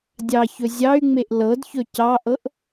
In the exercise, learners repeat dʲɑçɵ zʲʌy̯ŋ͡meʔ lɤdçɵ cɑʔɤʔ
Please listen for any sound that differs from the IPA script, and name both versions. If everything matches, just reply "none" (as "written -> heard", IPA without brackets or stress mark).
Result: ʌ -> ɑ